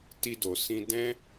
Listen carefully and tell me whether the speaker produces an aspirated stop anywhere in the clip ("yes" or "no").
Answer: no